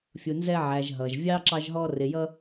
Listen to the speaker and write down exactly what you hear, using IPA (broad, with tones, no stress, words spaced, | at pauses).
fʲu˨nzɛ˦ʕæ˨ʒɦʌ˩ʒ vʲɑ˥ǁɑ˦ʒɦɔ˦ rɪ˨jʌ˦